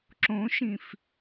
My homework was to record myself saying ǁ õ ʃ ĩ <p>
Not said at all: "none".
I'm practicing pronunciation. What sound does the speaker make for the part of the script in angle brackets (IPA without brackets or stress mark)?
f